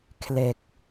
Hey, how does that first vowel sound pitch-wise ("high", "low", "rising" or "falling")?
low